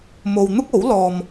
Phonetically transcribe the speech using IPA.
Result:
mo˧wn̪ʊ˥k̚o˨˥wlɔː˧m

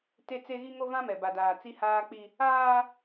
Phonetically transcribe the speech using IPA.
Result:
te˦t͡se˦ ɣi˦ŋo˦ vã˦mɛ˨ba˨daː˨ t͡si˦haː˦ k͡pi˦ | aː˦

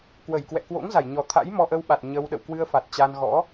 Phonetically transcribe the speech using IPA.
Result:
kwə˧˩jkwɛ̰˧˨ kwo̰˧˥ŋza˧˩jɲɔ˨˩t̪ʰa̰˧˥j mɔ˧ʔə˧wɓa˨˩t̚ ɲə˧w ɗə̰˧˨wkwɨ˧ə̯fa˨˩t̚ t͡ɕa˧n ɣɔ̰˧˥

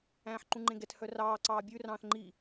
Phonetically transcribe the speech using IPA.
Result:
æ̃ːħǃũŋ͡ǃẽɡɛt hœrɑː ǀɑːbʲʉ rɑ̃ːθŋ͡ǃi

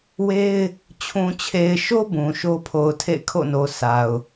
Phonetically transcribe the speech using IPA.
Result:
we˦ɪ̯ | t͡ɕʰũ˨t͡ɕʰe˨ɪ̯ʃo˦ bũ˨ʃo˦ pʰo˨ʊ̯tʰḛ˦˨ɪ̯kʰo̰˦˨no˨ sa˨ʊ̯

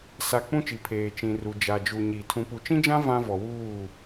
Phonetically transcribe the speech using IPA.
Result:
sa˨ k͡pũ˦t͡ʃi˨ pʰeː˨t͡ʃĩ˨ru˨ d͡ʒa˨d͡ʒu˨ɲi˨ tʰũ˨pu˨t͡ʃĩ˦d͡ʒã˦ vã˦vɔ˨wuː˦˨

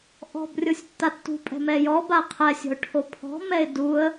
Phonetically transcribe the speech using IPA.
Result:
ʔɔ̤b rʲosʲtːatːṳpʼɛ̤ mɛjɔbaə̯ qʰɛsʲɔ̤ʊ̯ ʈʰopʰɔ̤mɛɪ̯ duə̯

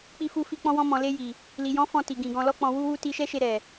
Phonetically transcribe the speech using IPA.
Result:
k͡pi˧fu˧ fi˧ k͡pɔ̃˧wɔ̃˧mɔ̃˨le˧ ji˨ | li˨jɔ̃˨˦ fɔ̃˧ti˨ɡĩ˨ ɡɔ̃˨lɔ˧k͡pɔ̃˨ wu˧wu˧ ti˧ʃɛ˦ʃe˧ ɾɛ˨

